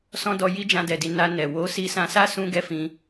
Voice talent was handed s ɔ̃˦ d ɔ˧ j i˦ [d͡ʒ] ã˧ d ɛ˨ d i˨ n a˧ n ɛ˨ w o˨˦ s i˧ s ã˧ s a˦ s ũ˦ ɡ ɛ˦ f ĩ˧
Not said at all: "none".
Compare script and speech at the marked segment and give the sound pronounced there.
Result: d͡ʒ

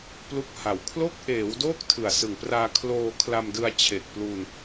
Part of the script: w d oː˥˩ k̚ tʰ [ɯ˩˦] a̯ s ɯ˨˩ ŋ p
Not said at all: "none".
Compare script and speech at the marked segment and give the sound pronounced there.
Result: ɯ˨˩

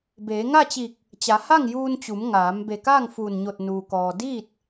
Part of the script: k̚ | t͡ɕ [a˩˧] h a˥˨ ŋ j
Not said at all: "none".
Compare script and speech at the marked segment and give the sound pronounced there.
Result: a˩˧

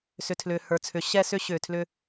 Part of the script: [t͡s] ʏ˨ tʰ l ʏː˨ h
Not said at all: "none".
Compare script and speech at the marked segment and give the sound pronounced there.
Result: s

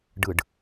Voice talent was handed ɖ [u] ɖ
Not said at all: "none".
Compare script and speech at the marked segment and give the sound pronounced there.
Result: ɯ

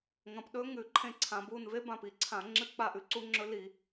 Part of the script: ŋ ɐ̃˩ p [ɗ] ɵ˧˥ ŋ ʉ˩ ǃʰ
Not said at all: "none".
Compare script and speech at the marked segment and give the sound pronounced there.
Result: ɗ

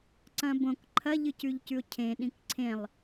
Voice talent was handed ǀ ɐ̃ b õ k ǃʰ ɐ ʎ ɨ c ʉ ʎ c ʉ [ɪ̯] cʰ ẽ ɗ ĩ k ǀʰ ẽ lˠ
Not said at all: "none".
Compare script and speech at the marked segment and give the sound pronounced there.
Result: ʊ̯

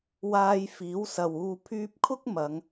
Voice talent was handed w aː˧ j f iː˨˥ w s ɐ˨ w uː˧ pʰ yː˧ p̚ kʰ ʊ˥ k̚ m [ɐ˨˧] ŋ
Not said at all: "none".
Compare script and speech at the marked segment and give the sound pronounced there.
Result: ɐ˨˧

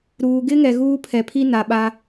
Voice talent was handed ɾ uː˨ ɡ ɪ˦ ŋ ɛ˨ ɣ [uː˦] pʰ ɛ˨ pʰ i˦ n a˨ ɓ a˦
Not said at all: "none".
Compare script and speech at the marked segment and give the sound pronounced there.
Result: uː˦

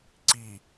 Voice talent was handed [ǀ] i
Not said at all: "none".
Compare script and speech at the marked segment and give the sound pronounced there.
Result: ǀ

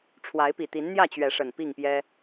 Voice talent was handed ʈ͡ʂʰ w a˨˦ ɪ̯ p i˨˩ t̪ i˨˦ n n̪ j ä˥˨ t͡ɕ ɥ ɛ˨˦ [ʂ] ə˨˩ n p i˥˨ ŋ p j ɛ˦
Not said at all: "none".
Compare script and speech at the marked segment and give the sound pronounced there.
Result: ʂ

